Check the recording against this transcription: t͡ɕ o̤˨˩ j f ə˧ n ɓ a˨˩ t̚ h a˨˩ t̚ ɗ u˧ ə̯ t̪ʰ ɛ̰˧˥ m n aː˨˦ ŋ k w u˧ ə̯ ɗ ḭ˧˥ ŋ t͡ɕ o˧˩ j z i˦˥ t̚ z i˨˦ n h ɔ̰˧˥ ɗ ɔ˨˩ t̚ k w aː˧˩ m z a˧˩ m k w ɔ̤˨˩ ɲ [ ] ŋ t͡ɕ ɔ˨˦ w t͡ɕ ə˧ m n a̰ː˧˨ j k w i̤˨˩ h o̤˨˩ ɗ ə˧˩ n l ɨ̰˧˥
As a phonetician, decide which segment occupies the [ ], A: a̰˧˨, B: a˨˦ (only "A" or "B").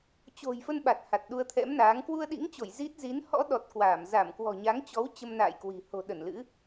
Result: B